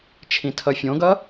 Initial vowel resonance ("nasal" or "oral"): nasal